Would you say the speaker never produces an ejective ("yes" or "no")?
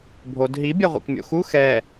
yes